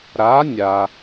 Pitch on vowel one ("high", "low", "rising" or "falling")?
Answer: rising